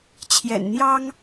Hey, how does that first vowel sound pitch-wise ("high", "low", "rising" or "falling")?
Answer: low